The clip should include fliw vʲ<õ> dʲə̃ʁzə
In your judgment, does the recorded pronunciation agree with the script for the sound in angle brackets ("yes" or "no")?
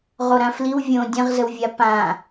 yes